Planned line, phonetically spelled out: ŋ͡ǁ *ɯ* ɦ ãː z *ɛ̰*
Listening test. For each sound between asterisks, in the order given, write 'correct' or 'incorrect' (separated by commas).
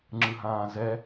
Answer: correct, incorrect